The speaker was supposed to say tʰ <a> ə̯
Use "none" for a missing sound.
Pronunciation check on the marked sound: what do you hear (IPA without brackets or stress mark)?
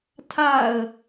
a